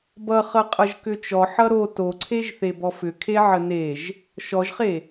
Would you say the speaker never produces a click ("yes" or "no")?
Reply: no